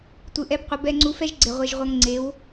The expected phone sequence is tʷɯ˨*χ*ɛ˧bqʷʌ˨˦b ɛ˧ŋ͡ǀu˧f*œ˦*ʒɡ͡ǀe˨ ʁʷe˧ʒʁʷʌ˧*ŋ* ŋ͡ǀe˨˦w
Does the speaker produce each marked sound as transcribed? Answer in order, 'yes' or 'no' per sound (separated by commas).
no, no, yes